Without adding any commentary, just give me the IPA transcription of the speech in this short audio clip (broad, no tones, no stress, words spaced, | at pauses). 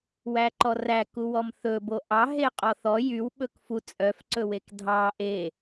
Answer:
wæǃɔræ kuwɔmθɵ boʔɑ ɦeqʼɔθɔ jyw ɓɵkfu t͡sʼœf ǀɵwekdʱɑ ʔe